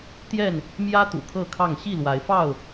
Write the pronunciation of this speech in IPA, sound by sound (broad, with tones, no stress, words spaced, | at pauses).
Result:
t̪jɛ˥˨n | mjä˦ t̪ṵ˨˩kʰɤ˥˨kʰɑ˥˨ŋ ɕi˥˨lwa˨˦ɪ̯fɑ˥˨ʊ̯